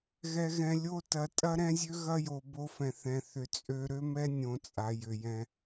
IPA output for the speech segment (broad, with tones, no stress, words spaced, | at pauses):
ɣɛ˨ɣɛ̃˨ lʲo˦tɐ˨ tʼɐ˦ɾɛ̃˦zʲø˦ɣɐ˦ jo˨ bo˦fɛ̃˨ θɛ̃˨θʏ˨t͡sʼø˦ ɾø˦mɛ˦nʲõ˨ t͡sʼa˨jʏ˨jɛ̃˦